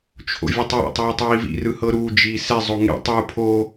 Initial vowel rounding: rounded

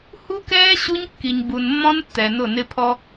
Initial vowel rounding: rounded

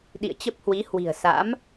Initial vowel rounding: unrounded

